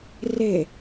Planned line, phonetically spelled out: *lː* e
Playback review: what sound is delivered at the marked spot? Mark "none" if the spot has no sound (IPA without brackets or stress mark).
r